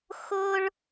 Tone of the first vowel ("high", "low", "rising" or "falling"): high